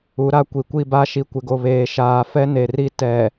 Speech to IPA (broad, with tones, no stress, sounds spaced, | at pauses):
u˨˦ ɾ a˦ kʷ i˨ kʷ i˦˨ b a˦ ʃ i˨ kʷ ɪ˨ ɡ o˨ β eː˨ ʃ aː˨ f ɛ˦ n e˨ r i˦ t ɛ˨